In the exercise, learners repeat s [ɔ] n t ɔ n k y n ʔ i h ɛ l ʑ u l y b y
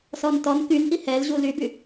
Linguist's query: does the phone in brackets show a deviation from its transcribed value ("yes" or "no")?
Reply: no